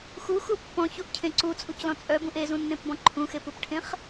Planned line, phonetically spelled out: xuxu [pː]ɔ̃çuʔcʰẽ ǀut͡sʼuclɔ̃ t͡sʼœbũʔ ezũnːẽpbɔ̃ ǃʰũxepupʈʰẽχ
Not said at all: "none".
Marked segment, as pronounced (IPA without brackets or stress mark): pː